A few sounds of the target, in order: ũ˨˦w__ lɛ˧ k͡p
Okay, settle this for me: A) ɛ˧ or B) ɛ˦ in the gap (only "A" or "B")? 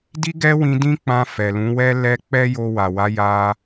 B